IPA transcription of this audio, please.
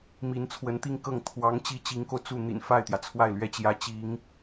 m i˧˥ n t͡sʰ w ə˧˥ n t̪ i˥˧ ŋ k ɤ˥˩ ŋ t̪ʰ w ɑ˧˥ ŋ t͡ɕ i˧˥ t͡ɕ i˧˥ ŋ k o˧ ʊ̯ t͡s u˥˩ n̪ ḭ˨˩ n f a˥˩ ɪ̯ t̪ j ä˩ t͡sʰ w a˥˩ ɪ̯ l ɥ ɛ˥ t͡ɕ j ä˧˥ t͡ɕ i˧˥ ŋ

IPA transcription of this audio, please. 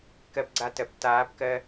k ɜ˧ p ɡ͡ǀ a˧ t ɜ˨ p t aː˨˦ p k ɜ˧

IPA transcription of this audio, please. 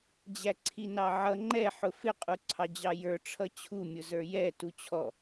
d͡ʑ æ ǀʰ i n ɑ ʕ ʌ ŋ͡ǃ ɛ ħ ʊ f ɪ qʼ u ǀʰ ɑ d͡ʑ ɑ j ə˞ ʈ͡ʂʰ ʌ t͡ɕʰ u mʲ ʊ z ə˞ j ɛ t u t͡ɕʰ ɔ

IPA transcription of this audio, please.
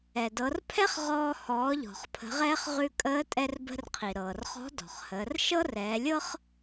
ɛ˩ d ɤ˩˧ r pʰ ɛ˥ χ ʁ ɔː˧ h ɔː˩˧ ʎ ɔ̤˩ χ pʰ ə̤˩˧ ʁ ɛː˧ χ ʁ ʉ˧ kʼ əː˧˥ tʼ ɛ˧ r b ə̤˧ r qʰ i˩ ɾ ɤː˩ r χ ɔ̤˧˥ d ɔ̤˩ χ h əː˩˧ r ʃ ɤ˥ r ɛː˩˧ lʲ ɤ˥ χ

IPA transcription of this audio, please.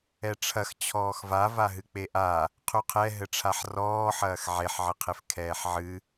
ɛ ʈ͡ʂʰ ɐ x t͡ɕʰ ɔː x v a v a ɦ ɨ k͡p e ʔ a | qʰ u qʰ ɛ ɦ ɘ ʈ͡ʂʰ a ħ r ɔː ħ ɐː x ʕ e ħ ʕ ɘ qʰ e f kʰ ɛː ħ ʕ ɨ

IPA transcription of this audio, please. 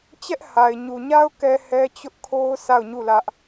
t͡ɕ ɛ˦ ʔ h a˨ ɪ̯ ɲ u˨ ɲ a˦ ʊ̯ k ɛ˦ h ɛ˦ t͡ɕ ʊ˦ ʔ kʰ o˦ ʊ̯ s a˦˨ ʊ̯ ɲ u˦˨ l ä˦ ʔ

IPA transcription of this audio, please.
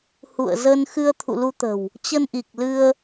h ṵ˧˨ ə̯ z ə˧ n x ɨ˧ ə̯ t̪ʰ ṵ˧˨ l u˧ t̪ ə̤˨˩ w | t͡ɕ ə˧ n ʔ i˨˩ k̚ l ɨ˧ ə̯

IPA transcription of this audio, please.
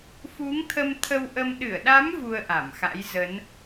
f u˨˦ ŋ t̪ʰ ə˧ m t̪ʰ ə˧ w ʔ ə˧ m ɗ ɨ˧˩ ə̯ ɗ a˨˦ m v u˧ ə̯ ʔ a˧˩ m x a̰˧˥ j z ə˨˦ n

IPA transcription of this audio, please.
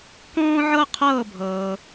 k ɔ̃ː˥ ʕ ɤ˥ qʰ ɤː˥˧ bʱ ɤː˧

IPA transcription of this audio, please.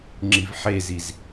ŋ͡ǁ i v ħ e z i z

